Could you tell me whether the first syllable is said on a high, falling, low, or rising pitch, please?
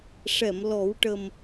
low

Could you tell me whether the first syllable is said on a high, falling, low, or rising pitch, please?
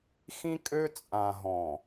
high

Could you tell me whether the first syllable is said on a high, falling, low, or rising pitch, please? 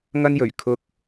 high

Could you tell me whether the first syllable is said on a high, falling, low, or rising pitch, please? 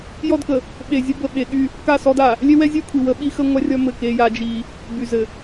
falling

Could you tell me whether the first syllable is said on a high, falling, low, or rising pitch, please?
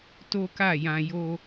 high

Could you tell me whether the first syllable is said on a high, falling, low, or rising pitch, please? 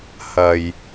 low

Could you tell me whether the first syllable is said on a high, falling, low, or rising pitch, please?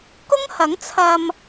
high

